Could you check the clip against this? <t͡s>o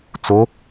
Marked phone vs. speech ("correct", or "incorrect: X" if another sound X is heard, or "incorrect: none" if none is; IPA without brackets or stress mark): correct